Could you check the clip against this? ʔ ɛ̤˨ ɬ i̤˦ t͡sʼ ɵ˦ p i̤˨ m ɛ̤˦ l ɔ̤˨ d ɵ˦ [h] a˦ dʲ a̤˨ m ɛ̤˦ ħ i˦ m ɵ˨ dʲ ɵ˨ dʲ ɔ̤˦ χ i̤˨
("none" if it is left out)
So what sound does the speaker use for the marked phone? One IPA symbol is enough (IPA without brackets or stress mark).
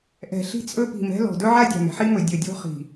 ʕ